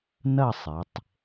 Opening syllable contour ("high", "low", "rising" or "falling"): falling